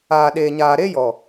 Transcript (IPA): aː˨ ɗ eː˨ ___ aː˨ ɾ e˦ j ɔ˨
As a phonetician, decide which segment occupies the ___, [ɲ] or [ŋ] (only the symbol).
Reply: ɲ